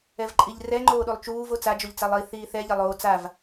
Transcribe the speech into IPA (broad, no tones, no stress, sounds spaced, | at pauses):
ɛ v ǃʼ i ʎ r ɛ ŋ͡ǃ oː ɗ u lˠ t͡ʃ uː v o t͡s a d͡ʒ o ʎ t͡s a lˠ i θ iː θ ɛ ʎ ɐ lˠ oː t͡s a v